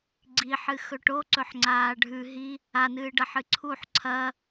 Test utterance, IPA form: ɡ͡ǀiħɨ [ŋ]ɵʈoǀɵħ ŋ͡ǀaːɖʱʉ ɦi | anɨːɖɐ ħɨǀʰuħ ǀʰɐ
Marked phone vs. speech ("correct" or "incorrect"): incorrect